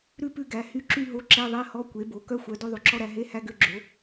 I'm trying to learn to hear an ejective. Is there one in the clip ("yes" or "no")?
no